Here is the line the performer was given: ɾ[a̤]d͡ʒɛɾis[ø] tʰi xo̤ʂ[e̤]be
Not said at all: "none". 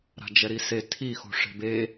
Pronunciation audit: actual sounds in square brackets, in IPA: a̤, e, e̤

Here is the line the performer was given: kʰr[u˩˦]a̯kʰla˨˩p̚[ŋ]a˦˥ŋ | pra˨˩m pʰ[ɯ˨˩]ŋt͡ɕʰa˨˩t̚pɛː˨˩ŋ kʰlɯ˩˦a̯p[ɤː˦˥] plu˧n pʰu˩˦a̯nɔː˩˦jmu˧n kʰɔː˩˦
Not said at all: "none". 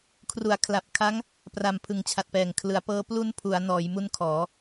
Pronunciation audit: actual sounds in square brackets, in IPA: u˩˦, kʰ, ɯ˨˩, ɤː˦˥

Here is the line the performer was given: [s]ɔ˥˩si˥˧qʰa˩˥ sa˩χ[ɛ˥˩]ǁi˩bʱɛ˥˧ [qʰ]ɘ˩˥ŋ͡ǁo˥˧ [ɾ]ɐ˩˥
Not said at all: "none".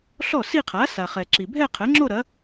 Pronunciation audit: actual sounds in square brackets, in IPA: ɬ, ɛ˩, qʰ, ɾ

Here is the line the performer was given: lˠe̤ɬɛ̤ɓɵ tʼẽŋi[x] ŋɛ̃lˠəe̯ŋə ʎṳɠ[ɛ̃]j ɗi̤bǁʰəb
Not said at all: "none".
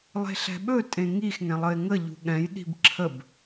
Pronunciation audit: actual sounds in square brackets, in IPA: x, ɛ̃

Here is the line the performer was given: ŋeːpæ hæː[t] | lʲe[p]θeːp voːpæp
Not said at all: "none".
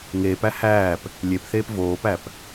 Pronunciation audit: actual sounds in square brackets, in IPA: p, p

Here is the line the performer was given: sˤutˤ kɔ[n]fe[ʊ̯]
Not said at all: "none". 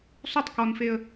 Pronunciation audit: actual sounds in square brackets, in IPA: n, ə̯

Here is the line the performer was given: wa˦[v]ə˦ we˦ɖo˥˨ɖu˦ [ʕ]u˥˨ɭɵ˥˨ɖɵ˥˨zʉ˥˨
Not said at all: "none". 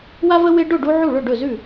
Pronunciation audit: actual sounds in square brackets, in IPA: v, ʕ

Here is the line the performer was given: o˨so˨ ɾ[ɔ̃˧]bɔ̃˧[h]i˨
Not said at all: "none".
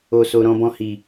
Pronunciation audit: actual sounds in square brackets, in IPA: ɔ̃˧, h

